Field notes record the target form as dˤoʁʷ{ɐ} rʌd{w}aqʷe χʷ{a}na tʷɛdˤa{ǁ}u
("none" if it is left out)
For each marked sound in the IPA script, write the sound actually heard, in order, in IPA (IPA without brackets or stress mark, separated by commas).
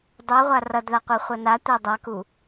a, ð, ʌ, k